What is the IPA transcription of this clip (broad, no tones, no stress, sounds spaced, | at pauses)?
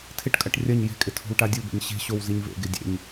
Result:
tʰ ɪ ʈ kʼ ɐ ʈ rʲ ɐ ɲ j e̤ kʼ ɪ tʰ o̤ w ʈ a dʲ u b ḛ ɲ ɕ e̤ ɕ o w z i ɲ v ḛ ɡ e dʲ ḛ ɲ